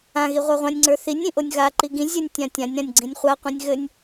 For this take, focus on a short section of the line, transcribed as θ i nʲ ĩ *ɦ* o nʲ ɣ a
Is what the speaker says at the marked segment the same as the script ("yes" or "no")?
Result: no